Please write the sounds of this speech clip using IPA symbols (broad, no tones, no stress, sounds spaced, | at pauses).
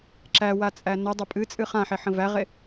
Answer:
ǁ æ w a t͡sʼ æ n ə dˤ ə pʼ ɨ t͡sʼ ɨ χ ã ħ e ħ ə̃ v æ ʁ e